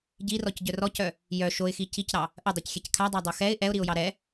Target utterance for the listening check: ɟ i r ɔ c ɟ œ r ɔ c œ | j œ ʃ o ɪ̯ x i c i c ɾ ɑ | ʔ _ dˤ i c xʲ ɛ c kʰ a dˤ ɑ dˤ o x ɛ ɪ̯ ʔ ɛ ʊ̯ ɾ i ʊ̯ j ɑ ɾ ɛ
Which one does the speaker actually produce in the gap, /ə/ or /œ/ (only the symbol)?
ə